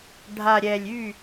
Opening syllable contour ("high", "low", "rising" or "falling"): low